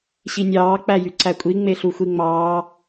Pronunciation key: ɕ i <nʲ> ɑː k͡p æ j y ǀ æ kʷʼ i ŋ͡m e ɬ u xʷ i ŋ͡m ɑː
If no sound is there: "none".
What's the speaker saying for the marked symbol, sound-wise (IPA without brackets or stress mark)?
nʲ